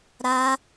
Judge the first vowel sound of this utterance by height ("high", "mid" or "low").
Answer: low